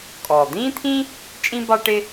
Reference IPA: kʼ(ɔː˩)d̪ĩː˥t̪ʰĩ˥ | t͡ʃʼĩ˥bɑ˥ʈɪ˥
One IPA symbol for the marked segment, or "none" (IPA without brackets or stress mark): ɔː˩